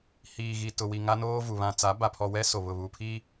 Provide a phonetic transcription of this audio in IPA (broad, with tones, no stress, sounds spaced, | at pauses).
h iː˨ ɣ i˨ t ʊ˨ w i˨ ŋ a˦ n oː˦ v u˨ β ã˨ t͡s a˨˦ b a˨ pʰ ɔ˨ w ɛ˦ s o˨ β ʊ˨ β u˨ pʰ i˦